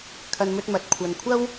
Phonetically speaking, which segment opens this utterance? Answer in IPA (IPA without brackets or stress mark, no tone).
kʰ